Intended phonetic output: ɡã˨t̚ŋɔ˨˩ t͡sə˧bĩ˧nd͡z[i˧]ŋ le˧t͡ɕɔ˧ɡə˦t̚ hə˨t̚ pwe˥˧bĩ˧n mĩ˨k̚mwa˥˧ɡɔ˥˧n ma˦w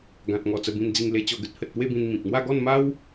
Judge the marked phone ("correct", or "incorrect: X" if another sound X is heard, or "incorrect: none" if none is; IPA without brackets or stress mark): correct